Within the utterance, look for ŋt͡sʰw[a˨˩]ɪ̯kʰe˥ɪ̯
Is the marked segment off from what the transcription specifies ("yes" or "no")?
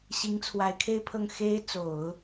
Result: yes